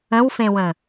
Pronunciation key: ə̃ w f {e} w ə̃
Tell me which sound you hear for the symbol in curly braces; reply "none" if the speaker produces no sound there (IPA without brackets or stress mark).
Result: ẽ